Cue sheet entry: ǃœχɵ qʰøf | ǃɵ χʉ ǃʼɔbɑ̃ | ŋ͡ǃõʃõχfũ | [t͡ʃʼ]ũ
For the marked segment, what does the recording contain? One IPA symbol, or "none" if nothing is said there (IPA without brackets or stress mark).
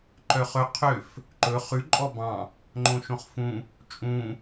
t͡ʃʼ